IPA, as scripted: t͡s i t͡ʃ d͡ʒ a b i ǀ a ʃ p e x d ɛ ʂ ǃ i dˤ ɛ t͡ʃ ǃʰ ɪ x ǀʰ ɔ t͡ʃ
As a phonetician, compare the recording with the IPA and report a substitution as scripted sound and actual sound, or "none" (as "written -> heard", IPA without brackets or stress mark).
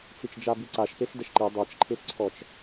ʂ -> ʃ